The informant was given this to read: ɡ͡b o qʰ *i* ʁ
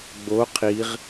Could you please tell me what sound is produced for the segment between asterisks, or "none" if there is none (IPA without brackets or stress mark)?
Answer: i